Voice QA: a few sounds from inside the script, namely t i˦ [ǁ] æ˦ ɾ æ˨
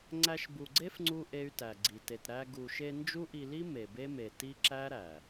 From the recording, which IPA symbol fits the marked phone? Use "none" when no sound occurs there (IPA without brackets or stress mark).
ǁ